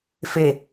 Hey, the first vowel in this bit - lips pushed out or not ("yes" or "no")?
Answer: no